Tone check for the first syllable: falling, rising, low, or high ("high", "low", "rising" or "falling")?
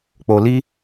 low